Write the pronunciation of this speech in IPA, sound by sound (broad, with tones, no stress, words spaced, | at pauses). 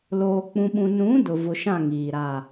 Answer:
loː˨k͡pũ˨ɓũ˨ nũ˨˦ dʊ˨ vʊ˨ʃã˦˨ ŋiː˨ɾa˦˨